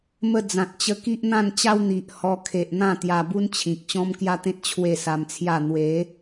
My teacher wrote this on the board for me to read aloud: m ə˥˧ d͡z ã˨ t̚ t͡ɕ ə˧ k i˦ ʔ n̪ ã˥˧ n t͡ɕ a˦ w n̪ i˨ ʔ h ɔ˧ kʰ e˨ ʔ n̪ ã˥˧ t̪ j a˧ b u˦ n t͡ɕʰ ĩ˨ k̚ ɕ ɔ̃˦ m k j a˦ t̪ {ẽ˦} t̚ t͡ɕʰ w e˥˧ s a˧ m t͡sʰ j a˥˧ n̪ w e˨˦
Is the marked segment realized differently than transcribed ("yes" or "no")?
no